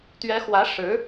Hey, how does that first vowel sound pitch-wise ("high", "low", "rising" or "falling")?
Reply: rising